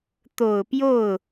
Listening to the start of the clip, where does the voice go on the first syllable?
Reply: low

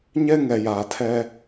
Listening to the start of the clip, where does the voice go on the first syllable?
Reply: high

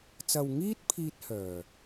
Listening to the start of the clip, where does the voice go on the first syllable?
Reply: low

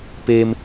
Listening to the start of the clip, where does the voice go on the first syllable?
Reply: high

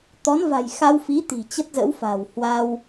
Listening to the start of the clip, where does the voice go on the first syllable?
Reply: rising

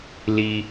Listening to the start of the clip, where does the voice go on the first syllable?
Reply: high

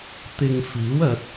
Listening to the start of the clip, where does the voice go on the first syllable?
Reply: low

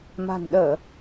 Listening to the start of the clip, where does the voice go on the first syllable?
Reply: low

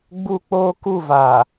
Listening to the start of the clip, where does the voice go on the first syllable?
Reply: high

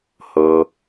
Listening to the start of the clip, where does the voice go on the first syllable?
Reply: low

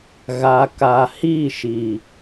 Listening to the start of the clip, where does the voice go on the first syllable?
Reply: low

